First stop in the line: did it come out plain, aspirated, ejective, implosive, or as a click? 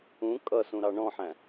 ejective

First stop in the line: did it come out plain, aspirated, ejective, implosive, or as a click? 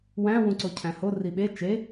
click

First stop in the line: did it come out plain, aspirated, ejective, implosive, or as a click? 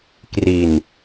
plain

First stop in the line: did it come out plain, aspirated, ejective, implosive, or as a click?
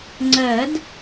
click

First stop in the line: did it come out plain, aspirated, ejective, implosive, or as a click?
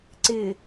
click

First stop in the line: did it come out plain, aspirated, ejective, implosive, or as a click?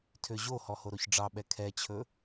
aspirated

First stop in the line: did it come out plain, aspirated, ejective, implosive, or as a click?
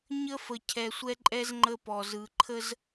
aspirated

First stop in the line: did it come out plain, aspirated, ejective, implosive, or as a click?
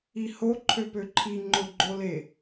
click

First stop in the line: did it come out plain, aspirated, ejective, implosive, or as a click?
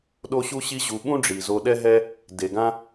implosive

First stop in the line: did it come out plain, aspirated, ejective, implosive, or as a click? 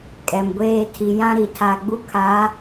ejective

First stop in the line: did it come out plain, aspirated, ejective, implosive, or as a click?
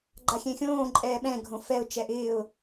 click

